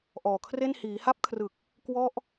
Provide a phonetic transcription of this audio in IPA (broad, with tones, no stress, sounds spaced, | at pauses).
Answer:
ʔ ɔː˨˩ kʰ r e˥˩ n h iː˩˦ h a˦˥ p̚ kʰ r ɯ˨˩ k̚ | k w ɔ˥˩ ʔ